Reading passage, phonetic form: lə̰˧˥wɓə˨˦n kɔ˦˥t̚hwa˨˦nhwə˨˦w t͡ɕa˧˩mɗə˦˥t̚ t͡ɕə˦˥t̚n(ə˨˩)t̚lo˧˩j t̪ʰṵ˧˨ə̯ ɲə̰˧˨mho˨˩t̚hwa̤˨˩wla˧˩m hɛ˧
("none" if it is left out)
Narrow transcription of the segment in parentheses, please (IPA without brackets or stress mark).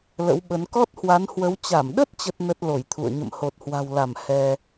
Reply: ə˦˥